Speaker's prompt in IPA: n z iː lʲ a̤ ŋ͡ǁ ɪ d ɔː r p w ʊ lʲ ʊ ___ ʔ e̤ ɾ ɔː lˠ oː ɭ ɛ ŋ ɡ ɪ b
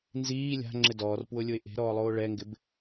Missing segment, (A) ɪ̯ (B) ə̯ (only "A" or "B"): A